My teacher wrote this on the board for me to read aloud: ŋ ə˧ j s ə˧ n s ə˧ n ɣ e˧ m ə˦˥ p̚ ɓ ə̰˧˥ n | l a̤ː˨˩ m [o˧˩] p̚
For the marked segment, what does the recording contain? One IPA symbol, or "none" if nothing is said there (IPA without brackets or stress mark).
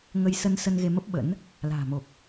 o˨˩